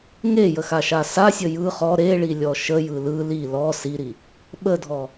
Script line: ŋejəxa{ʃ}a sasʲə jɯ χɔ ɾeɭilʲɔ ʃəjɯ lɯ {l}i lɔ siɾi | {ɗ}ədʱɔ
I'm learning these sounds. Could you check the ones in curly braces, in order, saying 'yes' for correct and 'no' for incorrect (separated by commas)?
yes, yes, no